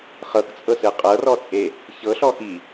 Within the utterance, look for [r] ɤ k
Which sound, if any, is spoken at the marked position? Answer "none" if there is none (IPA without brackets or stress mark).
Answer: χ